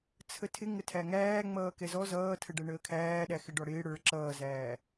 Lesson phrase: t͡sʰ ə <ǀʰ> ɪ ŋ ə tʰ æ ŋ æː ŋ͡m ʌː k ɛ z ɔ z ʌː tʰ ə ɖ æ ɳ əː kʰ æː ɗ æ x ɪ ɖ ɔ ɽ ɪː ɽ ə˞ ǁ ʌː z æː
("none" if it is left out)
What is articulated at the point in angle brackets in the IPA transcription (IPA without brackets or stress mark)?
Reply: tʰ